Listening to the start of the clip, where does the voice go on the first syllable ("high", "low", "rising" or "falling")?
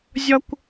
high